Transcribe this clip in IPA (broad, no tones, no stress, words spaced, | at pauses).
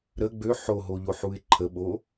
ɾə ɡ͡bø ħoɦoʎoħuɪ̯ ǃʰəɓo